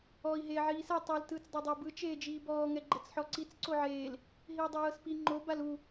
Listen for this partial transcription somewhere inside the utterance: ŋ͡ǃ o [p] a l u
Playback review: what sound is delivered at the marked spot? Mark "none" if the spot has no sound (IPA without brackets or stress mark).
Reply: b